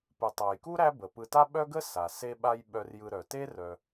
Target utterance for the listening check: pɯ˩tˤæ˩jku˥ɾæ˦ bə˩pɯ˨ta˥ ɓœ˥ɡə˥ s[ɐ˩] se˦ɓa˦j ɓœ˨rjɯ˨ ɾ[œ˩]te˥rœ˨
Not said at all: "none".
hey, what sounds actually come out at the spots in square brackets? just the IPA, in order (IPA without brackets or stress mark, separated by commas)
a˩, œ˩